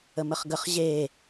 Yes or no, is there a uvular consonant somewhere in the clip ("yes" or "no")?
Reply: yes